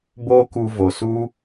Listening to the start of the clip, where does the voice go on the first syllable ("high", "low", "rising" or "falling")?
high